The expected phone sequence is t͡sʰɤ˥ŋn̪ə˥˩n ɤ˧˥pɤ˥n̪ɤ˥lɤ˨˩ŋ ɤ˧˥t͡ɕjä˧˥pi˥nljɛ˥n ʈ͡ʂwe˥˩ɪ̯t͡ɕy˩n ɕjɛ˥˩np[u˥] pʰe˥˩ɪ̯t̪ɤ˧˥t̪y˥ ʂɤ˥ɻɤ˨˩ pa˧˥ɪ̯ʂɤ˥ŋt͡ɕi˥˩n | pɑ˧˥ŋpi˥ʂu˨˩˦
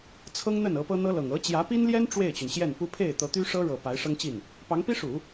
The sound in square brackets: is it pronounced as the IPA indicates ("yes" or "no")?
yes